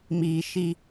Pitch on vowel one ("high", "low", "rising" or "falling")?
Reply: low